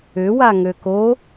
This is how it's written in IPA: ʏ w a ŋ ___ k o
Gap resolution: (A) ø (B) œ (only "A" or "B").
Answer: A